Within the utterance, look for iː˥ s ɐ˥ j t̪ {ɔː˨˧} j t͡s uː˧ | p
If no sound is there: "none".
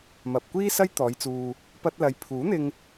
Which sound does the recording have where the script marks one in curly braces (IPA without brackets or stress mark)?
ɔː˨˧